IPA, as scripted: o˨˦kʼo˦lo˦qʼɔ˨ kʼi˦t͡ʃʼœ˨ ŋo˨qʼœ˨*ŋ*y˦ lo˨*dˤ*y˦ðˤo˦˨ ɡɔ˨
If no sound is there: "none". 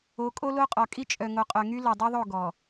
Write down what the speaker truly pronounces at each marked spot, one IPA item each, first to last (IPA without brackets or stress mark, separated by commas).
ŋ, dˤ